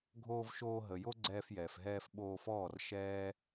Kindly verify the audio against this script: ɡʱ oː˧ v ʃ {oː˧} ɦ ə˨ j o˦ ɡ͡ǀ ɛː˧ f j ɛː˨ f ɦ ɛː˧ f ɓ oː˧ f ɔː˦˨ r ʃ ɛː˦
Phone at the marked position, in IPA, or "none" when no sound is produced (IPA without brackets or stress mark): oː˧